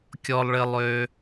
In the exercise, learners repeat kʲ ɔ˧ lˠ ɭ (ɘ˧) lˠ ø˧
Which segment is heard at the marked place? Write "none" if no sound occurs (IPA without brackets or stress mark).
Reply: ɘ˧